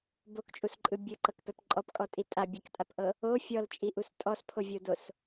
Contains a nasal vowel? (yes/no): no